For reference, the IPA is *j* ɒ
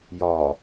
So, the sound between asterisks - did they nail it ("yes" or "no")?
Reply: yes